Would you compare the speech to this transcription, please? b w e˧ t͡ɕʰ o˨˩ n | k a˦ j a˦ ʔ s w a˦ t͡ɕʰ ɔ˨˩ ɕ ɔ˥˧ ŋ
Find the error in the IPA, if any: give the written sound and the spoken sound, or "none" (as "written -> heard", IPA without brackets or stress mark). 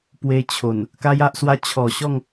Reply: b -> p